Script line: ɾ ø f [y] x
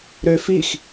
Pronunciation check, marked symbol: incorrect: i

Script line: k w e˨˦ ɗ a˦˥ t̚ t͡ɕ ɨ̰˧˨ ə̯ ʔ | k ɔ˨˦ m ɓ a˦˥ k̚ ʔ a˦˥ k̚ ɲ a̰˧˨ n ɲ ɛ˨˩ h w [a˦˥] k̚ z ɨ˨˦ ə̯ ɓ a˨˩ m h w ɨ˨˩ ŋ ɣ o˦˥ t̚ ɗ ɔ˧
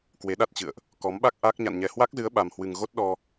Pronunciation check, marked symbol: correct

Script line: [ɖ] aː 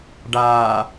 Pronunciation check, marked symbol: correct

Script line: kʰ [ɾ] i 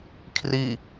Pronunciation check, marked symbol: incorrect: r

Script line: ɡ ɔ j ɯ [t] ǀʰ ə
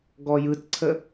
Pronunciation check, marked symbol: correct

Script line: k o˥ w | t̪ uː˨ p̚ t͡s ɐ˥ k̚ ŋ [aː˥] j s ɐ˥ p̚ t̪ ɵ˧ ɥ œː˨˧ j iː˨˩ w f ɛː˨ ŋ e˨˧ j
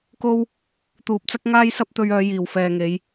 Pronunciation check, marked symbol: correct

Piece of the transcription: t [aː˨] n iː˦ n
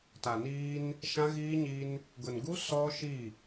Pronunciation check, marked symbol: incorrect: a˨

